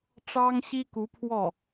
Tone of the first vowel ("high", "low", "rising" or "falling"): high